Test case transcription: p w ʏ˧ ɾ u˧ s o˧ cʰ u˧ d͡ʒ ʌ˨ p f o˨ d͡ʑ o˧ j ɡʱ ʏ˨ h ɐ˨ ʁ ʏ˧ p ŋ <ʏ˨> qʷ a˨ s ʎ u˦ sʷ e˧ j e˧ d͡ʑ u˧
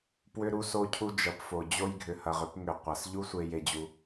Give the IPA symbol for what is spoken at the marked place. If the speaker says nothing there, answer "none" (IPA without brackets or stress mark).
ʏ˨